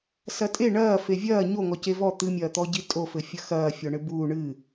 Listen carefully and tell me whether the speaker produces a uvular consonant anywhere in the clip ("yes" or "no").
no